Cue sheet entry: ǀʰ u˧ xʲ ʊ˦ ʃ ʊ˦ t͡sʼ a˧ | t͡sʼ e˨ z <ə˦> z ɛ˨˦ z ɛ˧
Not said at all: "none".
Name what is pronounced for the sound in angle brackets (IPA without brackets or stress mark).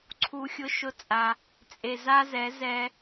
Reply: a˦